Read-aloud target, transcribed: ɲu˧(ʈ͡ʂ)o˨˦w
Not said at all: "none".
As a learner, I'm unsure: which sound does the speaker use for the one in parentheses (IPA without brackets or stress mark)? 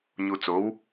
t͡s